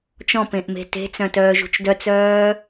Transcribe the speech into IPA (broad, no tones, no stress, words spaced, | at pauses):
t͡ʃɔ̃pẽʔme̤ te̤t͡sœ̃tœːʒṳt͡ʃ dœt͡sœː